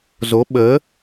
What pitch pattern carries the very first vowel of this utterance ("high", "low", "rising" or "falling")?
rising